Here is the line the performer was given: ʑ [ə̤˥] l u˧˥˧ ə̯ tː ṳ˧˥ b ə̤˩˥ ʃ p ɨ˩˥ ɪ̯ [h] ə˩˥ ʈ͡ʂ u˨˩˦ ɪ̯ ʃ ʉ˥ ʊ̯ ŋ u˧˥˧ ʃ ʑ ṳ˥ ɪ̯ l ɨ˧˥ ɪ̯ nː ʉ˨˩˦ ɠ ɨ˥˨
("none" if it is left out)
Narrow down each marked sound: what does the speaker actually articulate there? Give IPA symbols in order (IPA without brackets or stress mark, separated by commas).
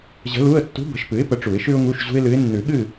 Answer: ə̤˧˥, p